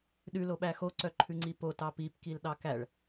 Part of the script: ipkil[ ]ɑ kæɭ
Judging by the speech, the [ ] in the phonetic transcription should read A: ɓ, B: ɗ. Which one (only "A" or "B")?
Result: B